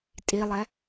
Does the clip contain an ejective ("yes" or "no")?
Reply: yes